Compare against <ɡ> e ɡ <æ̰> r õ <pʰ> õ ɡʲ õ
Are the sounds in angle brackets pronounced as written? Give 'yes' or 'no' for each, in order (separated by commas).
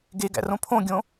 yes, yes, yes